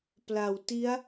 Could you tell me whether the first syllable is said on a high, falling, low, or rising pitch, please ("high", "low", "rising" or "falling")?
low